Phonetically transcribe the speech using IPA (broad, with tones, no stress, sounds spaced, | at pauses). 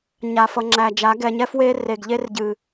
ɲ a˨ f ʌ˨ ŋ͡ǁ æ˨ d͡ʒ a˨˦ ɡ ɛ˨ ɲ ɛ˦ f w e˦ r e˨ ɡ ʎ e˦ r ɟ ɨ˨